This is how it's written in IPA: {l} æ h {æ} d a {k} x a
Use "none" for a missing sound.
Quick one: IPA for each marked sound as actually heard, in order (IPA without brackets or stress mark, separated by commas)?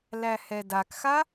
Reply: l, ɛ, k